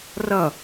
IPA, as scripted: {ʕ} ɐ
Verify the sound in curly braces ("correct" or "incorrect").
incorrect